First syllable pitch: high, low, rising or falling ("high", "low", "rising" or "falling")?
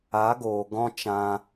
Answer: rising